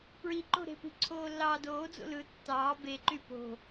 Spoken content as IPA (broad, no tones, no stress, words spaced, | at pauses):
pɹiǃo̤ɾe̤pi̤ ǀʰoːlːɑːdoːd͡zo̰ lɯ tːɑː beǃy po̤